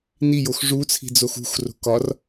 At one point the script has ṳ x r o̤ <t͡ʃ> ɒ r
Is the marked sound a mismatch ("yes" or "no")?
yes